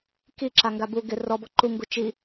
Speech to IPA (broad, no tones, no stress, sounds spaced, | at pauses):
k i ǁ a ŋ ɡ a b u ɡ ɪ r ɔ b ɔ ǃ u ŋ ɡ u t͡ʃ i